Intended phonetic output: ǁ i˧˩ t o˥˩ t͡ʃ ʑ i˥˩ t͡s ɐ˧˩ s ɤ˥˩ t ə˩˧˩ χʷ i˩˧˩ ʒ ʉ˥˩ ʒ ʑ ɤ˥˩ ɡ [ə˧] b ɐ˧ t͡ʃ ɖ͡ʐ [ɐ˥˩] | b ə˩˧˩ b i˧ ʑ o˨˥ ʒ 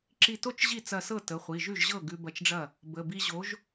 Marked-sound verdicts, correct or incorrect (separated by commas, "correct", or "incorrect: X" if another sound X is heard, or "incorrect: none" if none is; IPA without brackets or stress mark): incorrect: ʉ˧, correct